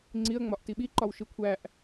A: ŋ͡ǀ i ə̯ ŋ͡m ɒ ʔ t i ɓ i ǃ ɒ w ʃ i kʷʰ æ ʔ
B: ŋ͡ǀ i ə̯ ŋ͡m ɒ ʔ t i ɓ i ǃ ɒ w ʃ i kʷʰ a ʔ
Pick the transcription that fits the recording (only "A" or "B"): A